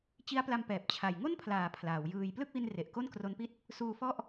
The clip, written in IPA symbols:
t͡ɕ i˦˥ a̯ p l a˧ m p ɛː˨˩ p̚ t͡ɕʰ a˨˩ j ŋ o˥˩ n pʰ l aː˩˦ pʰ l aː˩˦ w j ɯː˧ j p l ɯ˥˩ k̚ w i˧ n r e˨˩ ʔ k o˥˩ n k r o˦˥ n p i˥˩ t̚ | s uː˧ f ɔ˥˩ ʔ

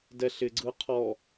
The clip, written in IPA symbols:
d ɛ ɬ ɪ ɡ͡ǀ ɯ qʰ ɔ

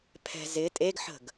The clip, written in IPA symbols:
pʰ ɛ̤ z ɪ tʼ e ɡ ħ ə̤ ɡ

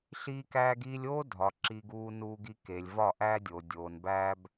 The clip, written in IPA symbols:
ɬ iː˦ k æː˦ ɡ iː˦ lʲ oː˦ dʱ ɒ˨ ǁ i˦ ɡ uː˦ n uː˦ ɡ i˦ k e˨ lʲ v ɒ˦˨ ʔ æː˦ dʲ oː˨ dʲ oː˨ n b æː˦ b

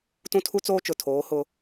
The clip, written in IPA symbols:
t ũ˦ tʰ u˦ t͡s oː˦ t͡ʃ ʊ˨ tʰ oː˨˦ h ʊ˦

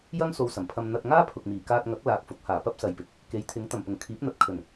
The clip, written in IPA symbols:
j ɐ˥ ŋ s o˧ w s ɐ˨˩ m pʰ ɐ˧ m n̪ ɐ˧ t̚ ŋ aː˥ pʰ ʊ˨ k̚ m iː˨˩ k aː˧ t̚ ŋ ɐ˨˥ k̚ l aː˨ k̚ f ʊ˨˥ k̚ h aː˨˩ p ɐ˥ p̚ s ɐ˨ j p ɪ˨ k̚ | k e˨˥ j t̪ʰ ɪ˨˥ ŋ t̪ ɐ˨˩ m p ʊ˨˩ ŋ kʰ iː˨˥ p̚ n̪ ɐ˧ t̚ kʰ ɵ˨˩ n

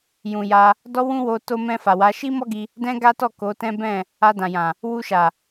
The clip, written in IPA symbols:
j ũ˨ j a˧ | d ɔ˦ w ũ˦ w o˧ t o˧ m ɛ̃˧ f a˨ w a˨˦ ʃ i˦ m ɔ˦ ɡ i˧ | d ɛ̃˦ ɡ a˦ t ɔ˦˨ k o˨˦ t ɛ̃˦ b ɛ̃˦˨ | a˧ d ã˨ j ã˨ | w u˧ ʃ a˨

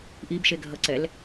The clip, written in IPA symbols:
ʔ i b ʃ e ɡʱ ʌ ǀ ɛ l

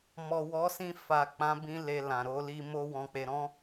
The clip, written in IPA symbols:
m ɔ˨ w ɔ˨˦ s ĩ˧ f a˨ k͡p ã˨˦ b ĩ˧ l e˨ l ã˨ ɾ o˧ l i˧ m o˦ w ɔ̃˧ k͡p e˧ ɾ ɔ̃˦

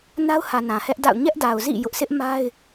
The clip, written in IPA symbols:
n a˦ ʊ̯ h ä˨ n ã˨ h ɛ˦ ʔ d a̰˦˨ ʊ̯ ɲ ɛ˦ ʔ d a˨ ʊ̯ z ḭ˦˨ j ʊ˦ ʔ s ɪ˦ ʔ m a˦ ɪ̯

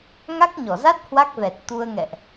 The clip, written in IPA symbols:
ŋ a˦˥ k̚ ɲ ɔ˧˩ z a˦˥ t̚ h w a˦˥ k̚ v ɛ˨˩ t̚ t̪ u˧ ə̯ ŋ ɛ̰˧˨ ʔ

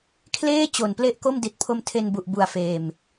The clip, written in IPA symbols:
kʰ l eː˥˩ t͡ɕ o˨˩ n p l e˥˩ ʔ k o˥˩ m d i˨˩ t̚ pʰ o˧ m tʰ e˧ n b u˨˩ ʔ b u˨˩ a̯ f eː˨˩ m

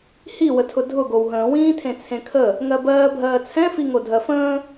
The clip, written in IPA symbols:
h i w ə tʰ ʊ dʱ ʊ ɡ o w ɦ ə̃ː w ĩː tʰ ẽ t͡sʰ ẽ kʰ ə | ŋ ɜ b ɜː bʱ ɜː t͡sʰ ɛ̃ f i ŋ o dʱ ɜ f ə̃ː

